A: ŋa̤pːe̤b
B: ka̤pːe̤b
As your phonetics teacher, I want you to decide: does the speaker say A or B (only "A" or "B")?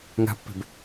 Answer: A